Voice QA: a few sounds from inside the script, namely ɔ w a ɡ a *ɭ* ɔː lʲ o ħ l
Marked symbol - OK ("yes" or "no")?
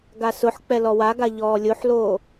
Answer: no